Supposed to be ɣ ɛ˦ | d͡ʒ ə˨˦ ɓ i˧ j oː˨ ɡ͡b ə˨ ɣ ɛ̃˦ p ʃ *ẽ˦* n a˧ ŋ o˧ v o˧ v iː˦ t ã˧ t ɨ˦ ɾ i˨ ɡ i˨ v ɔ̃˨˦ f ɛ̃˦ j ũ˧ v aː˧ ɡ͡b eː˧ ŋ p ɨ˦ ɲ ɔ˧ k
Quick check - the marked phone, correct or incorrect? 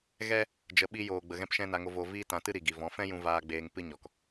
incorrect